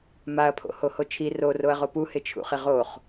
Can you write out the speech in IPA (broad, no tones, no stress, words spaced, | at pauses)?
maɐ̯pʰo̰ hohot͡ʃʰi roroɐ̯ʁo puhɪ t͡ʃʰṵχɪʁoχ